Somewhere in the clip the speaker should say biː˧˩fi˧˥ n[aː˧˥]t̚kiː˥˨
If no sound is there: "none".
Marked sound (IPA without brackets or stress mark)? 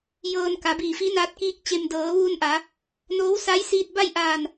aː˧˥